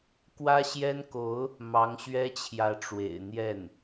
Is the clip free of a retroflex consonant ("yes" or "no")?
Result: no